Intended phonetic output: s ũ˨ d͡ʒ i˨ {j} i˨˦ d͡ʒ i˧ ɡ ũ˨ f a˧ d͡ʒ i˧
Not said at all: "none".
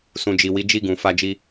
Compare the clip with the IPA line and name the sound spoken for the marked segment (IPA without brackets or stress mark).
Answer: w